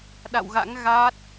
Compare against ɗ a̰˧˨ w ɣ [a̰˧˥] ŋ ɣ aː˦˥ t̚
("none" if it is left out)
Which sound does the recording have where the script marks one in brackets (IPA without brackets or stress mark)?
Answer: a̰˧˥